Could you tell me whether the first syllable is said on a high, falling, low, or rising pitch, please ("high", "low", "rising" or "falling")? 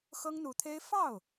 high